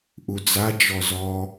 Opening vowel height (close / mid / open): close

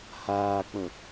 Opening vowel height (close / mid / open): open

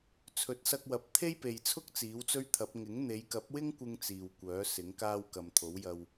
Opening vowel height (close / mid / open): mid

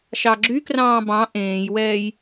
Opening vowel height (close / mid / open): open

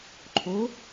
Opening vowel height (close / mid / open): mid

